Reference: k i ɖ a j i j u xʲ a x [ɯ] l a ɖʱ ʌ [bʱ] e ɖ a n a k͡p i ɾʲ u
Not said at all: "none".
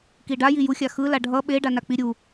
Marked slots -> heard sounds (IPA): ɯ, ɓ

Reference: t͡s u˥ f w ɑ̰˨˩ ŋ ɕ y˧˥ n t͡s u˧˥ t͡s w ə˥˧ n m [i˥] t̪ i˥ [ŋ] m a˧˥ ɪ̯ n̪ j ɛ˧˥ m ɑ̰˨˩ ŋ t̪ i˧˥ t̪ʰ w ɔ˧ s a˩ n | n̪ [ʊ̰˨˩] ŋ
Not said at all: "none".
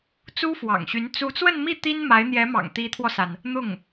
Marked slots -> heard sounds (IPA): i˥˩, n, ʊ˥˩

